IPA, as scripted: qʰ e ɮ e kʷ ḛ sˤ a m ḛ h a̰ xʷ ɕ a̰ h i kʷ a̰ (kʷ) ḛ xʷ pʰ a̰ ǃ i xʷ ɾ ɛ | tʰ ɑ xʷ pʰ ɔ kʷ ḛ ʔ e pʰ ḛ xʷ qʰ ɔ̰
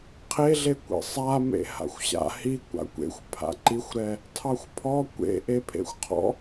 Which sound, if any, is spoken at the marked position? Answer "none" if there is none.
kʷ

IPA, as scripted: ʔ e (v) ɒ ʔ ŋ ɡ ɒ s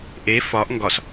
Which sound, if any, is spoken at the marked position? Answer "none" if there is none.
f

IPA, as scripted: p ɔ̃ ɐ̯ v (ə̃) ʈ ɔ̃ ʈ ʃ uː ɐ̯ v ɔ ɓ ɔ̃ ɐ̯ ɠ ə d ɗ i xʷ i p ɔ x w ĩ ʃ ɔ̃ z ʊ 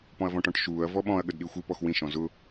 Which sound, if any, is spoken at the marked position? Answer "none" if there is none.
ɔ̃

